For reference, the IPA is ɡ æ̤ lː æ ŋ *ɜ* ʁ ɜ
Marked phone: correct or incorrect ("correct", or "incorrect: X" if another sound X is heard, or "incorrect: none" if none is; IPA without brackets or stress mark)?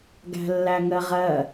correct